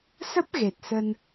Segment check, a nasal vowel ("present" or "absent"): absent